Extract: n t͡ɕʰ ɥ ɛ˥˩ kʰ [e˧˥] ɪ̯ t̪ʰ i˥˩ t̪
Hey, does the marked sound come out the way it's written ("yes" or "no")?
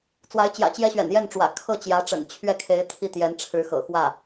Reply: yes